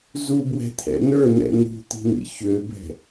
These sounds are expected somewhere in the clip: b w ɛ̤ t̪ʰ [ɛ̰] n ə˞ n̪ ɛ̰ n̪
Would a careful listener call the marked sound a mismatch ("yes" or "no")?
no